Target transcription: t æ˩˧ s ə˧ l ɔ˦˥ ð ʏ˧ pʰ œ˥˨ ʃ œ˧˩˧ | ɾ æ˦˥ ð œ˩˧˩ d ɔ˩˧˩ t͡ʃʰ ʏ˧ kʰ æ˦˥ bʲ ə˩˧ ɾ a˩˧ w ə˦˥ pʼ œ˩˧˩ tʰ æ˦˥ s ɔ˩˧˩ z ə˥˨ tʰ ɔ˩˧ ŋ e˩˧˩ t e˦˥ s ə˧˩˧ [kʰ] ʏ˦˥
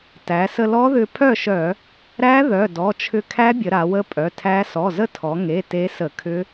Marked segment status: correct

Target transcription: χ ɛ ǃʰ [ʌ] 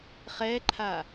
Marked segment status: incorrect: a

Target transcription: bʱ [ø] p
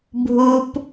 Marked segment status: incorrect: u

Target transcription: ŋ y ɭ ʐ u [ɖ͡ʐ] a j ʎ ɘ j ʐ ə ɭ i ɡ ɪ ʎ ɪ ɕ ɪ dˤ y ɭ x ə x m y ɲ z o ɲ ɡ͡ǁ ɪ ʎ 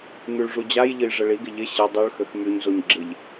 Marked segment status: incorrect: d͡ʑ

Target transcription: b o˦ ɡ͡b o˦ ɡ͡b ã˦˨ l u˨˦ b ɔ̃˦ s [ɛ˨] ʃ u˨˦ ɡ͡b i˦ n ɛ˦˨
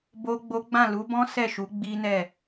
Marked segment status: incorrect: ɛ˦˨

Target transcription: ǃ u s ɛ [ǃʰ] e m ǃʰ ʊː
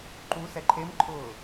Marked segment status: correct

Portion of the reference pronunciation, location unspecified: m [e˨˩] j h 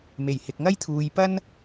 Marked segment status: correct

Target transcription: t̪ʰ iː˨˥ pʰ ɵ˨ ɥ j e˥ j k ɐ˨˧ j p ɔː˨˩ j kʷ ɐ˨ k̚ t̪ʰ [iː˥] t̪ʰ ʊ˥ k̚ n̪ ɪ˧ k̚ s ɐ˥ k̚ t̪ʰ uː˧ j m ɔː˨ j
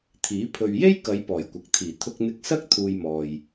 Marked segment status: incorrect: iː˨˩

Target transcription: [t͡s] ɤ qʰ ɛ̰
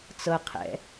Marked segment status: correct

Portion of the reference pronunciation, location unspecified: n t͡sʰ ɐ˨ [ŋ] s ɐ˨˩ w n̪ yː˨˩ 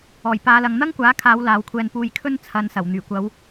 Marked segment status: incorrect: n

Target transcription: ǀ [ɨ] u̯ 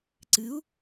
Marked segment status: correct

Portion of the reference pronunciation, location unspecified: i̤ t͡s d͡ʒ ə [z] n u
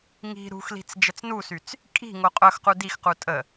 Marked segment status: incorrect: t͡s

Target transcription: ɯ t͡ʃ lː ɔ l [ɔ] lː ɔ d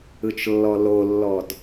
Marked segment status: incorrect: o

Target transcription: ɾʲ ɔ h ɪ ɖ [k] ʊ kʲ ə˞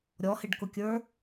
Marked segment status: correct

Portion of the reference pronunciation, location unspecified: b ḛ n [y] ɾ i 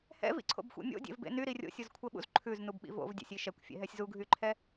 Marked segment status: correct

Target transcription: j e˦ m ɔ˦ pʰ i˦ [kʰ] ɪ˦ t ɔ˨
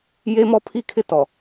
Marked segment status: correct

